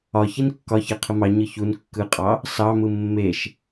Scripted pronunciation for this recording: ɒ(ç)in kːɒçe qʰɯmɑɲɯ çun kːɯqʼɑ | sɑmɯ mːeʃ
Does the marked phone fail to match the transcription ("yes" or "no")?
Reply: no